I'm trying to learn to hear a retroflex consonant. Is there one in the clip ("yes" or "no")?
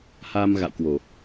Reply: no